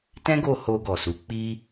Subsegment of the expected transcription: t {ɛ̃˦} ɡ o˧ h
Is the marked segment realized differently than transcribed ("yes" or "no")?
no